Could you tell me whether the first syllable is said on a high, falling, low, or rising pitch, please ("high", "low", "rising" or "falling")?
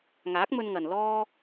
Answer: rising